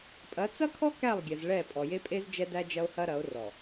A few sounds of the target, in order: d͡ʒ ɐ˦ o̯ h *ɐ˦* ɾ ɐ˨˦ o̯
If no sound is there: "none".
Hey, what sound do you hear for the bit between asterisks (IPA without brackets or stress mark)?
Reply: ɐ˦